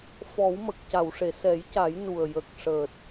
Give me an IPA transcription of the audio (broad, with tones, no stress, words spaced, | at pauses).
fɔ˨˩˦wmə˨˩k̚ca˨˩˨wʂe˨˩˨ sɛ˨˩˦jca˨˩˦j nu˨˩ə̯ jə˨˩k̚ʂəː˨˩t̚